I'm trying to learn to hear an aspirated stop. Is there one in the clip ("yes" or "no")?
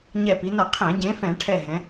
yes